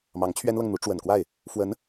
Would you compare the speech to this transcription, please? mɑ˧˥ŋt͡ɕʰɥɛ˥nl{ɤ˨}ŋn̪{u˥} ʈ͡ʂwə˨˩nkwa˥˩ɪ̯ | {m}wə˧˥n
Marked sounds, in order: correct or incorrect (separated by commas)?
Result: correct, incorrect, incorrect